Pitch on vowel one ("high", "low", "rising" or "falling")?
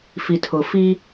low